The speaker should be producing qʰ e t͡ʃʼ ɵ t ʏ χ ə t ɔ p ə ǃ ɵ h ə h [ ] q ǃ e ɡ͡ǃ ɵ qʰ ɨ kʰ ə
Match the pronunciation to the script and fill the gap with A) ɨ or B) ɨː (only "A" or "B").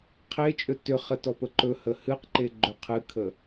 A